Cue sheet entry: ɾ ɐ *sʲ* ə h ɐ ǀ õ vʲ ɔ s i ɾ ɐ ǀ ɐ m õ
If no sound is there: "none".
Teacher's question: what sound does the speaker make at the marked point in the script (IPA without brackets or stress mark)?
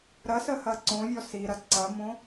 s